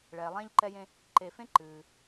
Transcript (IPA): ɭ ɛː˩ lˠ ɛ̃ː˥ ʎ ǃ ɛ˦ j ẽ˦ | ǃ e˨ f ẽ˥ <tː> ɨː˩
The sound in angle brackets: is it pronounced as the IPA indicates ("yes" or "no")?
no